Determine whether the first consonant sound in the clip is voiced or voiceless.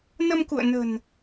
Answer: voiced